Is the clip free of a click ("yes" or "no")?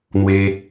yes